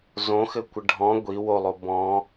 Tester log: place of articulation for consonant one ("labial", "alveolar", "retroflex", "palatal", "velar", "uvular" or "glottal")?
alveolar